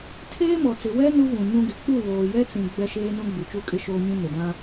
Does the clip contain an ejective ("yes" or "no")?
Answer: yes